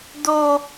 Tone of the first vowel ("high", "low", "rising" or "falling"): high